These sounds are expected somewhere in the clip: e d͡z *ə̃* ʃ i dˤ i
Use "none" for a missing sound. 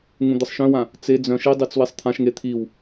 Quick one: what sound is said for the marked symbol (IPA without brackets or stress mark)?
œ̃